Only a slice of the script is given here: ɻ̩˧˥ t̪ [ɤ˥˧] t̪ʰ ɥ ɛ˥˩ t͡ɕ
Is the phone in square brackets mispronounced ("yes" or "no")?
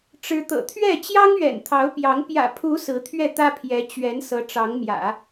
yes